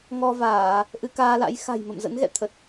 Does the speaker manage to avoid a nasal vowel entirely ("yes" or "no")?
yes